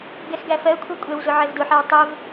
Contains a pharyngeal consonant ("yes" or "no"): yes